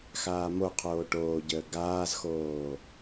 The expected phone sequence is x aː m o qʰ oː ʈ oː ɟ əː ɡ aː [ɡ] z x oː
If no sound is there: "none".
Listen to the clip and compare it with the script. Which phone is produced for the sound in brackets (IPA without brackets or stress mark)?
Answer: none